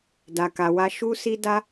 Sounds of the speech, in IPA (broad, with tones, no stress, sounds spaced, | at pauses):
d a˧ k a˧ w a˦ ʃ u˦ s i˦ d a˦